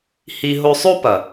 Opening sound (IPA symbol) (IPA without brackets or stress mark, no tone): h